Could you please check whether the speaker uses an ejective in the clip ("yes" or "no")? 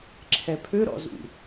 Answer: no